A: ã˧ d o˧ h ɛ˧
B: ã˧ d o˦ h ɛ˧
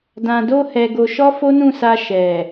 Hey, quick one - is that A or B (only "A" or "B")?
B